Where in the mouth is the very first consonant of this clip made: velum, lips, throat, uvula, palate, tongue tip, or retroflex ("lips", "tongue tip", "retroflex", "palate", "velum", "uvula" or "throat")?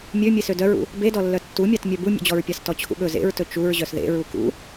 lips